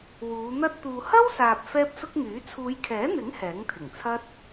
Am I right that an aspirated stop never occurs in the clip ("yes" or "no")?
no